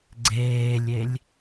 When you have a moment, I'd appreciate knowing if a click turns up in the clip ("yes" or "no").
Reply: yes